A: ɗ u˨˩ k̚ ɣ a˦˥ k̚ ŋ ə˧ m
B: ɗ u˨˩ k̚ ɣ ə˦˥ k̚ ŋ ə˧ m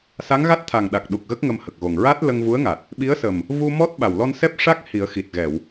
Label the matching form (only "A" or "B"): B